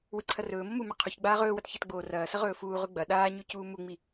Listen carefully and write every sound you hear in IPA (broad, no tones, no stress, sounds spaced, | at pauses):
w ɨ ǀʰ ɐ r ɵː m o m u m e qʰ u ç ɡ͡b aː ʁ ɵː w ɐ t ç e t ɡ͡b oː r ɐː s ɐ ʁ ɵː f uː ʁ ʉ ɡ͡b ɐ ɗ aː ɲ ʉ c uː m u ŋ͡m i